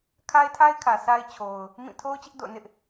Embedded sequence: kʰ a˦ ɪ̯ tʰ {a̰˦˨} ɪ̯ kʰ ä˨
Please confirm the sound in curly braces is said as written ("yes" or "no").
no